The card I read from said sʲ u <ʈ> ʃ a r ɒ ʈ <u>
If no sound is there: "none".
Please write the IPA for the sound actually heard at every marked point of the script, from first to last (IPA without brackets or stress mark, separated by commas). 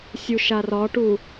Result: none, u